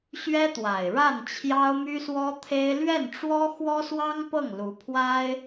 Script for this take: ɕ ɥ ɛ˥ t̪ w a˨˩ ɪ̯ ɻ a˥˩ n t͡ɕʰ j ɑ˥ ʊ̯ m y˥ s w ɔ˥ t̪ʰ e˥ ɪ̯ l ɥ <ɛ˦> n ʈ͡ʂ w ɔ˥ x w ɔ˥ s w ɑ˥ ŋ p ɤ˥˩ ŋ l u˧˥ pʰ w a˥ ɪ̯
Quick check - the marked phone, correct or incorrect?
incorrect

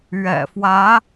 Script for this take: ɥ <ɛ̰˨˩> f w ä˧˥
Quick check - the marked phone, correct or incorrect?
correct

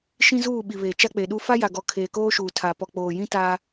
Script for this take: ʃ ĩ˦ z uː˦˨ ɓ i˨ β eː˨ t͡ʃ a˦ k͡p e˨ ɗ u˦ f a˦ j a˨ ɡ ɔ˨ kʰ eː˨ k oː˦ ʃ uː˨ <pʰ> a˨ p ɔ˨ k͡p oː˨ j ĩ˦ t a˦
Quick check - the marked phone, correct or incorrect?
incorrect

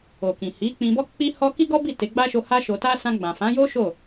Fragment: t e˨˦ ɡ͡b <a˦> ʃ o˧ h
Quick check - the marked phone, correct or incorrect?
correct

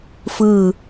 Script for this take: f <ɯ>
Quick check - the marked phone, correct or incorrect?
correct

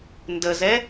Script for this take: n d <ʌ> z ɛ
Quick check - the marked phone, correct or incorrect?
incorrect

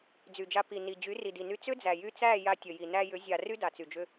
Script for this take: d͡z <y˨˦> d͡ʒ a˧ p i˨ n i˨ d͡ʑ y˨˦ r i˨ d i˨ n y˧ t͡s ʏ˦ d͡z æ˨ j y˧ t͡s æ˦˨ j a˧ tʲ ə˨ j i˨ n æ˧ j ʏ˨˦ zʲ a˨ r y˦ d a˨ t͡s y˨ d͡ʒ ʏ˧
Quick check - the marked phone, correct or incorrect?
incorrect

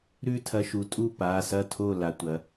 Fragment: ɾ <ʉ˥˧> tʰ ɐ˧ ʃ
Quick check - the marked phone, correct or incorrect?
correct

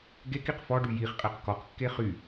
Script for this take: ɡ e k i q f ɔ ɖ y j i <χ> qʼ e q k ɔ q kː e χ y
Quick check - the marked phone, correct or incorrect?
correct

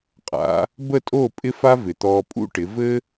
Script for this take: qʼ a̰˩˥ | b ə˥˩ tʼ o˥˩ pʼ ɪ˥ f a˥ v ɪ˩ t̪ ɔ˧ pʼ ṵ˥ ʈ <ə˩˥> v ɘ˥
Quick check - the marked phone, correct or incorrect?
incorrect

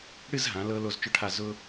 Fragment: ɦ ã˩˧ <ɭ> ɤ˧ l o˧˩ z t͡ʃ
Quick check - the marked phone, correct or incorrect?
incorrect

